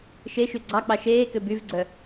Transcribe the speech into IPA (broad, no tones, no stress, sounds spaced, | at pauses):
ʃ e ʃ y ɡ͡ǀ ɑ k͡p ɑ ʃ eː k ø b y v ɡ͡ǀ œ